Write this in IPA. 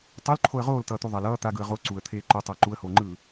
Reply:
tˤ o l ǃʰ o ə̯ ʁ oː l t ʌː t̪ u ðˤ a l ʌː t̪ a ɡ ɯ ə̯ ʁ o ǀ u ə̯ t̪ʰ eː ǃ o tˤ ʌː ǃ u ə̯ h oː ŋ͡ǃ ɯː

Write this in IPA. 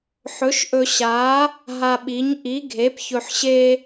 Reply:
ħ ɵ˨˥ ʃ ʔ ɵ˧ ɕ a˨˥ | ɦ a˧ ɓ i˨˥ ɲ ʔ i˨˥ ɡʱ e˨˥ p ç ɵ˧ ħ ɕ e˥

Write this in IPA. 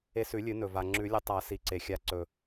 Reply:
e˧ s ʉ˨˩˦ lʲ ɨ˨˩˦ n ɵ˩ v a˩ ŋ͡ǁ ʉ˨˩˦ lʲ ɐ˧ tˤ a˨˩˦ s i˩ ǀ e˩ xʲ a˨˩˦ ǀ ɵ˩

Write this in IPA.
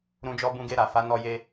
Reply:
ɾ ũ˧ d͡ʒ ɔ˦ b ũ˧ ɡ e˧ ɾ a˨ f a˨˦ n ɔ˧ j e˧

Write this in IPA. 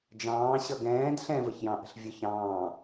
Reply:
d͡ʒ ɑ̃ː ɕ ʌ ɡ ɛ̃ː d ɬ ɛ̃ v ə ç j ɑ̃ ʔ ə̤ ɬ vʲ ʊ ç ɑ̃ː

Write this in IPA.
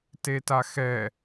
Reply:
t e t a x ɛ

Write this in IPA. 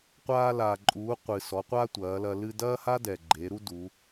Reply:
qʷ aː˧ l a˩ ǃʼ uː˩˧ qʷ ɨ˩ s ɔ˩˧ qʷ a˥ tʷ ɐː˩˧ l ɐ˧ l ɨ˧ d ɐː˥ h a˥ d ɛ˩ ɡ͡ǃ e˩˧ ɾ u˥ d u˩˧

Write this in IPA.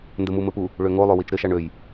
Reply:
n d ɘ m u m ɘ p u | ɭ ø ŋ o lˠ ø w i t͡ʃ ɾ ɘ ʃ a ɳ ø j

